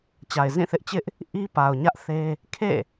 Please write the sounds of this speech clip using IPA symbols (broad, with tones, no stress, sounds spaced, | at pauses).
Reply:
t͡ɕ a˨ ɪ̯ z ĩ˦˨ θ ɪ˦ ʔ t͡ɕ ɪ˦ ʔ | ʔ i˦ p a˨ ʊ̯ ɲ ä˦ ʔ θ e˦ | kʰ ḛ˦˨